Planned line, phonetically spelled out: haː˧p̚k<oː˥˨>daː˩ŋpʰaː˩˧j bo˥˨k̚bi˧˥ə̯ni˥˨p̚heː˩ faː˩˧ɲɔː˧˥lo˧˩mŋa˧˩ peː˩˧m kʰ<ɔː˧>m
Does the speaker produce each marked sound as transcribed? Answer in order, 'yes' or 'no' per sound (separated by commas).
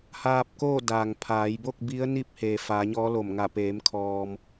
yes, yes